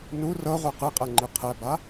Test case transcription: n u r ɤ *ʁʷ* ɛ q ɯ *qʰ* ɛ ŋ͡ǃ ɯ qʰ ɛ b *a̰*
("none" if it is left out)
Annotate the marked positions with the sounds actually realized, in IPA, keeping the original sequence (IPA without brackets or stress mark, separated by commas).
ʁʷ, qʼ, a